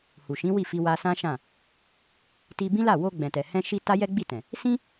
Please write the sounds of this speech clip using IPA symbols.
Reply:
h u˨ ʃ ĩ˨˦ w i˦˨ f i˧ w a˧ s ã˦ ʃ ã˦˨ | t i˧ b ĩ˦ l a˦˨ w o˧ ɡ͡b ɛ̃˨ t ɛ˨ h ɛ̃˧ ʃ i˧ t a˦ j ɛ˦ ɡ͡b i˦˨ t ɛ̃˨ | s ĩ˦

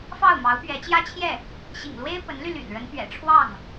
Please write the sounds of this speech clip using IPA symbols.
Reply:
f ɑ˥˩ ʊ̯ m ɑ˧˥ ʊ̯ p ɥ ɛ˧˥ t͡ɕ j ä˥ t͡ɕʰ j ɛ˥˩ | ɕ ḭ˨˩ ŋ l w e˥ ɪ̯ p ə˧˥ n l y˧ l y̰˨˩ n ɻ ə˧˥ n p ɥ ɛ̰˨˩ ʈ͡ʂʰ w ɑ˥˩ ŋ

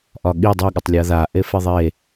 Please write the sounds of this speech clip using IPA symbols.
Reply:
ʔ ɒ ɠ i dˤ i ɠ ə tˤ lʲ a ð a ʔ e f e ðˤ e

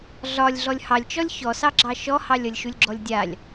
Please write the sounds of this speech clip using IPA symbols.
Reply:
ɮ ɒ lʲ ɮ ɔ lʲ h ɑ lʲ t͡ʃ ɔ lʲ ç ɔ s ɑ ɡ͡ǁ ɑ ʃ ɔ h ɑ lʲ ʌ lʲ ʃ u lʲ ɡ͡ǁ ɔ lʲ dʲ a lʲ

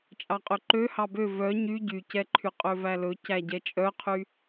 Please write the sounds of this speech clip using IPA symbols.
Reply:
t͡ʃʼ ɑ qʼ ø ǃ ø h ɑ b ø v œ ɲ y ɟ y c ɛ ǃʰ y qʼ ø v æ l ɵ c æ ɟ ɛ t͡ʃʼ œ qʰ y

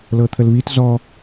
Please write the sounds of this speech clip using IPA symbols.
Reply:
l ɤ t̪ʰ ə l β i t z ɔ

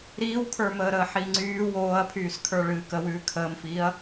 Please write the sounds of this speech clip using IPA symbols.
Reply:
ɾ iː w kʰ ə˞ m əː ɾ əː ħ i ŋ͡ǀ yː w oː ɐ̯ pʰ yː s kʰ ə˞ ɭ ɨː k ə w ʉː kʰ əː m f iː ɐ̯

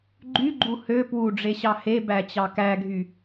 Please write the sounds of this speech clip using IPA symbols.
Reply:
ɡ͡ǃ y ɡ͡ǃ u h ø p w u ɖ͡ʐ e ɕ ɑ h e b æ t͡ɕ ɑ k æ ɡʱ y

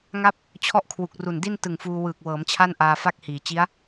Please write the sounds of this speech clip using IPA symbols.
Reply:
ŋ a˥˩ p̚ | t͡ɕʰ ɔ˥˩ ʔ kʰ w u˨˩ k̚ r u˨˩ n d i˥˩ n t ɯ˨˩ ŋ f uː˧ w ɯː˨˩ k̚ w ɤː˩˦ m t͡ɕʰ a˥˩ n ʔ aː˧ f a˥˩ k̚ h iː˩˦ t͡ɕ i˦˥ a̯

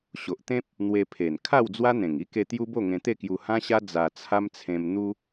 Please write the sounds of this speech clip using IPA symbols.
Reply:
ɕ o˨ ʔ t̪ ẽ˦ p̚ | n̪ w e˧ pʰ e˨˩ n kʰ a˥˧ w d͡z w a˦ n̪ ẽ˨˩ ŋ i˦ k e˧ t̪ j u˦ b o˥˧ ŋ ẽ˧ t̪ e˥˧ k j u˧ h ã˦ ɕ a˦ d͡z a˧ t͡sʰ a˦ m t͡sʰ ẽ˧ m n̪ u˦

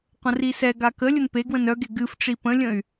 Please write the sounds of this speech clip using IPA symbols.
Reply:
qʷ ə̃ r i s ɛ ɡ a k ə lʲ ə n p e ɡ w ə̃ n œ ɡ e ɡ ɨ f ʈ͡ʂ i p ə̃ lʲ ə̃ y̯

